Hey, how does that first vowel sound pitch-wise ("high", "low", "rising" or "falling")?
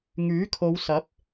rising